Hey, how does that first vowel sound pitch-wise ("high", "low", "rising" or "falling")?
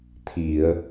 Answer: low